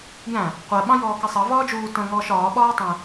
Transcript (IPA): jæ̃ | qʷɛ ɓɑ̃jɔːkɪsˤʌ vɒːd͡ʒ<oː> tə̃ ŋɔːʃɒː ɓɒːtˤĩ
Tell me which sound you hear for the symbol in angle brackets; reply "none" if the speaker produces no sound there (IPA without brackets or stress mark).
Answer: uː